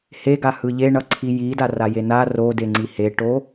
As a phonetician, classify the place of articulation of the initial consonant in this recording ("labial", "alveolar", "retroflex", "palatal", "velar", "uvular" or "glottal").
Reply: glottal